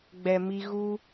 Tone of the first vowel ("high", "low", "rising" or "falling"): low